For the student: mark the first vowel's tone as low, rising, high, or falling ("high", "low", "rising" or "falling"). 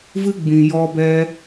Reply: high